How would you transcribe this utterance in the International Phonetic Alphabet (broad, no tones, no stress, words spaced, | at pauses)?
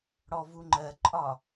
ɽɔvuŋ͡ǃɜǃʼɒ